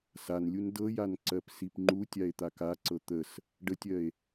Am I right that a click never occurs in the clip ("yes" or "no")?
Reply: no